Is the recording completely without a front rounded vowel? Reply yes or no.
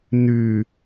no